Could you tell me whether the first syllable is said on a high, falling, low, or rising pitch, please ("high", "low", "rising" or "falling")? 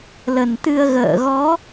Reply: low